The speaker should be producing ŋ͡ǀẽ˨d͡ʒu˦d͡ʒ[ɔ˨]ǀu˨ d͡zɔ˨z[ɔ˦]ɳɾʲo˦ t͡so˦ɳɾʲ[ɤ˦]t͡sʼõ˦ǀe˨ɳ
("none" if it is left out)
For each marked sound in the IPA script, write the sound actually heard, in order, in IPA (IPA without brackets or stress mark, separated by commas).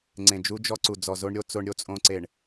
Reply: ɔ˦, o˦, o˦